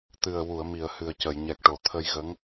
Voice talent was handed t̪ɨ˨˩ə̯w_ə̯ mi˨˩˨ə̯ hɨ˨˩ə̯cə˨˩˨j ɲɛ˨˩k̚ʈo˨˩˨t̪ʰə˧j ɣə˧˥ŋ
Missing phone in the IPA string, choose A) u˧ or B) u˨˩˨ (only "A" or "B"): B